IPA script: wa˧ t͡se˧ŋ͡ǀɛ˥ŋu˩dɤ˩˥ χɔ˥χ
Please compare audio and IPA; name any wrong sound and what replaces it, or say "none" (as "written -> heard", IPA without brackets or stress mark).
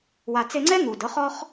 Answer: none